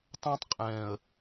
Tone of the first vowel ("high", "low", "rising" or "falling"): high